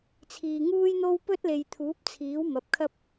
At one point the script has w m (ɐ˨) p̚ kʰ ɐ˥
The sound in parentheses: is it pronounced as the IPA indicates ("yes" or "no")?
no